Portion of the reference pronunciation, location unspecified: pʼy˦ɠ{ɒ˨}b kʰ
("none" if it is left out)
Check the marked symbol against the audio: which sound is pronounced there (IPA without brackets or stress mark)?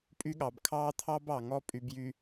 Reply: ɑ˨